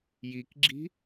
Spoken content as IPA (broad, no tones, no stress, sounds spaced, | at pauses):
j i k ɡ͡ǁ i̤